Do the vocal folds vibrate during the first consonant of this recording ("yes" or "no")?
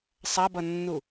no